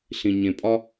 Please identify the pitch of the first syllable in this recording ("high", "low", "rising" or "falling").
low